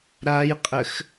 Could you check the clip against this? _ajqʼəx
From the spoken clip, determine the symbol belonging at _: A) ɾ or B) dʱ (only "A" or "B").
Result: A